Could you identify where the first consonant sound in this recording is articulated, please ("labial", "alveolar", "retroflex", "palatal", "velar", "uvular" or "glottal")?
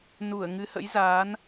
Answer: alveolar